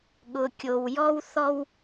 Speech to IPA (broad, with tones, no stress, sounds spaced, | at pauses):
ɠ ʊ˨ kʲ o˨ w j ɔ˦ w θ ɔ˦ w